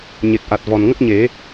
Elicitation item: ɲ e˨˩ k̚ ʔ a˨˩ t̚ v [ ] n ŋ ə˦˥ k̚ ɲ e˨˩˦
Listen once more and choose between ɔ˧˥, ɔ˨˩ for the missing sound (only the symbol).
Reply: ɔ˨˩